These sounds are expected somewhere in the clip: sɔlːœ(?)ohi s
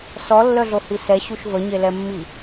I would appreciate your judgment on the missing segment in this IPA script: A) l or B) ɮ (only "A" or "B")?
B